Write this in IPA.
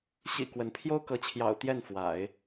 ɕ ḭ˨˩ k w ə˧˥ n pʰ j o˥ ʊ̯ k ɤ˧˥ t͡ɕʰ j ɑ̰˨˩ ʊ̯ t̪ j ɛ˥˩ n f w a̰˨˩˦ ɪ̯

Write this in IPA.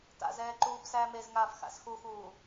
t a̰ z ɛː ǃ uː b s æː m e z ŋ aː f x a̰ s x u x uː

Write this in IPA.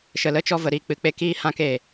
ʃ ə˨ l ə˦ t͡ʃ ɔ˧ v ə˨ ɾ iː˨ k͡p ɨ˨ k͡p e˧ k iː˦ h ã˦ k e˨

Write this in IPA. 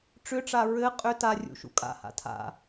ʈ͡ʂ ʏ ʈ͡ʂ a ɹ ɘ qʼ ʏ t a rʲ ṵ ʃ ṵ kʼ a̰ h a̰ tʰ a̰

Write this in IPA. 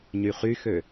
ɲ y χ y x ø

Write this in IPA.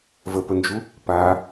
v ə p ə n d͡ʒ u | p a

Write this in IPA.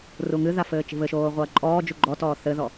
r u ŋ ɨ ð a f ɘː t͡ʃ i̤ β ɘ ʃ oː ʁʷ ɐː ǃʼ ɔː d͡ʒ u ɡ͡ǃ ɔ t ɔː θ ɘ ð ɔ

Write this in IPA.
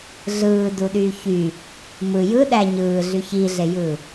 ɮ ɯː d u ɗ yː ç y | m ɯ j ɯ ɗ æ ɲ ɯː ɮ y ç i ɮ e j ɯː

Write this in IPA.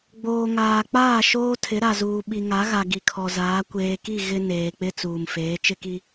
ɡ͡b oː˨ ŋ aː˨ k͡p aː˦˨ ʃ oː˦ tʰ ɪ˨˦ ɾ a˨ z uː˨ ɓ i˨ ŋ a˨˦ ɣ a˨ ɡ i˨ kʰ ɔ˨ z aː˨˦ kʷ eː˨ k i˦˨ ɣ ɪ˦ n eː˨ k͡p ɪ˦ t͡s uː˨ m f eː˨˦ t͡ʃ ɪ˦ k i˦

